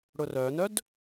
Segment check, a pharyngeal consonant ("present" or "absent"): absent